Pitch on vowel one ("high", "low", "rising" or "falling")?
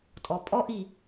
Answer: low